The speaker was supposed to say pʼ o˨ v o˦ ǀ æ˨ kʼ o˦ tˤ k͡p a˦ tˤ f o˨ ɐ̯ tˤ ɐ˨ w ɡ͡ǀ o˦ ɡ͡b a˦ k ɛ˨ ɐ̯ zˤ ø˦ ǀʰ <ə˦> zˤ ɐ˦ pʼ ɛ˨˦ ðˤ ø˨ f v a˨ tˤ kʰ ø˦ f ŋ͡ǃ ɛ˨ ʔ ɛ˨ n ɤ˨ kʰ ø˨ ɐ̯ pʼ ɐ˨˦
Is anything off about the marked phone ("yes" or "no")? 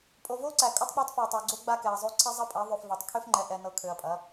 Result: yes